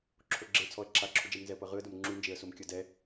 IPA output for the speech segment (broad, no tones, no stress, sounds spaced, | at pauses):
ǁʰ o ɡ͡ǁ e t͡sʰ ɔ ə̯ ǁʰ a ǁʰ u d͡ʒ ɛ m n z ɛ ə̯ p ɤ ʁ ɯ ə̯ d o m ŋ͡ǁ u n d͡ʒ e ə̯ s o m kʲ ɤ d ɛ